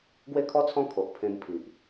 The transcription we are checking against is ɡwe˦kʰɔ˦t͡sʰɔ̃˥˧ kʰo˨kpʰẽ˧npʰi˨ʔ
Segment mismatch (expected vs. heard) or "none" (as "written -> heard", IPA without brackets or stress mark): k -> ʔ